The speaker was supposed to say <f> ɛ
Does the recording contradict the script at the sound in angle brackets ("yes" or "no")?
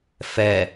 no